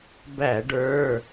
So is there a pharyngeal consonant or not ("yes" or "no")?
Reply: no